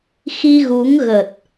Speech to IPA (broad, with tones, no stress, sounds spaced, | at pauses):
x i˧ ɣ u˨˦ ŋ ɣ ə˨˩ t̚